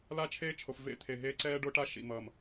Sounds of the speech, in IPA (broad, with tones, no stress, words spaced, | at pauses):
la˦t͡ʃʰeː˦t͡ʃʰo˨f vḛ˦t̪ʰe˨ɦeː˦ ǀɛː˦ɖo˦ʈa˦ ʃḭ˨mʌː˨m